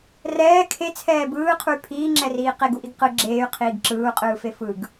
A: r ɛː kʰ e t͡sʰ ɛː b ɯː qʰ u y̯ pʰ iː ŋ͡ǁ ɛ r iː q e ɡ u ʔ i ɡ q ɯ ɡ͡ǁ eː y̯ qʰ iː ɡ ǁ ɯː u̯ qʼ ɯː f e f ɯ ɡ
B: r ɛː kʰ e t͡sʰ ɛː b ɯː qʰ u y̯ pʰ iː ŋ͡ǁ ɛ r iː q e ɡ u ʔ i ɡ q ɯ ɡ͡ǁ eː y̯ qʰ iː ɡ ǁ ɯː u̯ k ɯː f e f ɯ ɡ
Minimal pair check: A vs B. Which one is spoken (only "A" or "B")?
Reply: A